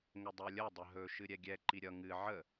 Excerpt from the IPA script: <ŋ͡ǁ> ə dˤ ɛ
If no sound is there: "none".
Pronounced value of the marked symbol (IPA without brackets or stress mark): ŋ